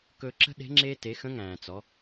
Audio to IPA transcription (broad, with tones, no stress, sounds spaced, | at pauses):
k ɵ˧ ǁ ə̤˥ ɗ e̤˧˥ ŋ͡ǁ e˧ t e˩˧ x ə̃˧˥ ŋ æ̃ː˩ t͡s ɔ˩˧